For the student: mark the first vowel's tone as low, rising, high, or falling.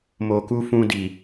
low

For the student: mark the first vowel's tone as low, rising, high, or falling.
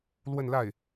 falling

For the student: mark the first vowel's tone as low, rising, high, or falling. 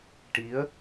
rising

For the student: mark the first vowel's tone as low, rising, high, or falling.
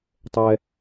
high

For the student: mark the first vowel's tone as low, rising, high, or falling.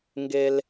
low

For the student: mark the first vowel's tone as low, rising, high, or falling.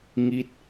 falling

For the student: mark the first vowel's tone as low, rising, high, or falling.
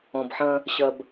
low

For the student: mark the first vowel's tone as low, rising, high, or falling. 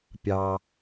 low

